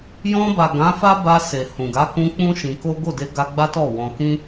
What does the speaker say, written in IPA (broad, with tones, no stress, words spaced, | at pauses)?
jɔ̃˧ba˨ ɡã˨˦fa˦ ba˧ se˨hũ˨ɡa˨˦kũ˧ k͡pũ˦ʃĩ˧ko˦ ɡo˦˨de˧ɡa˧ ɡ͡ba˦tɔ˦˨ wɔ̃˧ kĩ˦